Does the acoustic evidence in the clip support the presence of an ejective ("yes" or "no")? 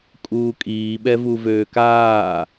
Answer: yes